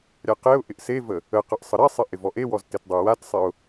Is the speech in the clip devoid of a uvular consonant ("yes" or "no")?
no